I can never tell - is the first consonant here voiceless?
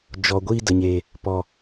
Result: no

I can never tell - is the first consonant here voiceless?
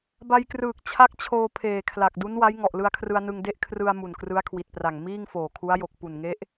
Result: no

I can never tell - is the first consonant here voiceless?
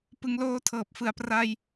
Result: yes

